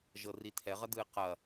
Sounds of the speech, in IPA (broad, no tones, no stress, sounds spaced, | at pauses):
ʒ ɤ r i tʰ ɛ ʁ ɐ d ɯ e̯ q ɐ